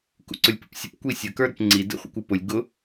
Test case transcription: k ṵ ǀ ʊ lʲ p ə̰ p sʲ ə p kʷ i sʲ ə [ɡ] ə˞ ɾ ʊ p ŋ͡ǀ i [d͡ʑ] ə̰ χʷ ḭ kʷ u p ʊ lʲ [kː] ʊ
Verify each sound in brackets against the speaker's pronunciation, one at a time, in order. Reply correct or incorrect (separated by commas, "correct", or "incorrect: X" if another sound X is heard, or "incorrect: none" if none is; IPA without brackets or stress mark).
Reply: incorrect: k, incorrect: d, incorrect: ɡ